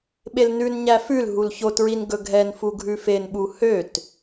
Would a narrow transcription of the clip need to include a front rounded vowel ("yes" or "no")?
yes